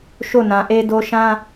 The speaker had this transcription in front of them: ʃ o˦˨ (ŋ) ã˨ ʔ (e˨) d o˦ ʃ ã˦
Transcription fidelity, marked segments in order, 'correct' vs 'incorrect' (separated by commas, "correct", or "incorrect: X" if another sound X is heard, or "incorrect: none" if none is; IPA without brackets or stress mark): incorrect: n, incorrect: e˦